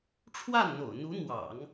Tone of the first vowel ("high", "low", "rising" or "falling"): falling